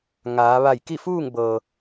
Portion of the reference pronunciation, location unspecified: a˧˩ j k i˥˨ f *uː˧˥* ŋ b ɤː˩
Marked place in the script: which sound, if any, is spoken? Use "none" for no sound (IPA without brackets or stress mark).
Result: uː˥˨